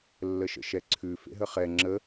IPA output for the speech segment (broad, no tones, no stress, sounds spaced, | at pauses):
lː ə ʃ ə̰ ʃ ɛ ǀʰ ʉ f ḛ ɦ ə χ ɛ ŋ͡ǁ ə